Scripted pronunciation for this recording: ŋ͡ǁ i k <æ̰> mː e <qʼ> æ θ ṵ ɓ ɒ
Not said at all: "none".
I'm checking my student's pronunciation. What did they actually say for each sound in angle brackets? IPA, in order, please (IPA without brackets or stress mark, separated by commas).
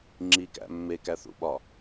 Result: æ̰, k